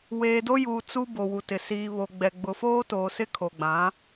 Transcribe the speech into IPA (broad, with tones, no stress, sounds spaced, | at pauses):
w eː˨ d o˦ j uː˨ t͡s u˦ b o˨ w u˨ t ɪ˨ s iː˨ β o˨ ɡ͡b ɛ˨ ɡ͡b ʊ˨ f oː˦ t oː˨ s ɪ˦ kʰ o˨ ɡ͡b ã˨˦